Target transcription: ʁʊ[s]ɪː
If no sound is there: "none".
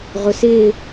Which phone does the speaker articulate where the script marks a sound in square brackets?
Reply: s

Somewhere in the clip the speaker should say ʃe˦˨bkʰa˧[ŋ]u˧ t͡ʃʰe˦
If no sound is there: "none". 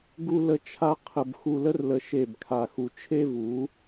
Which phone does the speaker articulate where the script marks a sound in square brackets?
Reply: x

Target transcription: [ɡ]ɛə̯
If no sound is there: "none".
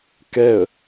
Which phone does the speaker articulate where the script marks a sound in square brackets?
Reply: k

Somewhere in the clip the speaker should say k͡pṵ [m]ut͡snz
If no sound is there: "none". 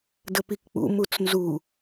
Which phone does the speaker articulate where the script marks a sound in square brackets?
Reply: m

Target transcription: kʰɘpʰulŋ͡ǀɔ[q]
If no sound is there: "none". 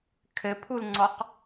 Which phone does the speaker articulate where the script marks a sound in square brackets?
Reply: q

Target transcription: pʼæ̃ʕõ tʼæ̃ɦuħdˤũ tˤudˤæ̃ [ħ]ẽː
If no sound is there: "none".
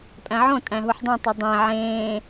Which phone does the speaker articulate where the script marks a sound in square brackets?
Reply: ʕ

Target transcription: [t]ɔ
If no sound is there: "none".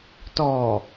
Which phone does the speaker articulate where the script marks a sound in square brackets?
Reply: t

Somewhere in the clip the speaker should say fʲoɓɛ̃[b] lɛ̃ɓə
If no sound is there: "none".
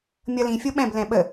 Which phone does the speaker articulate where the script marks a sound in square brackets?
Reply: b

